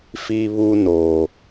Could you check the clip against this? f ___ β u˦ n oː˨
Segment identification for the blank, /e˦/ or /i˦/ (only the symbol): i˦